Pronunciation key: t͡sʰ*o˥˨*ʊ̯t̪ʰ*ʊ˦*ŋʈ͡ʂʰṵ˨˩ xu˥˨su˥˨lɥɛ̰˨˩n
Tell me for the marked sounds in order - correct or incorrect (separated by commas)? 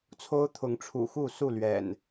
incorrect, incorrect